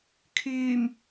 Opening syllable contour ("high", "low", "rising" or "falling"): low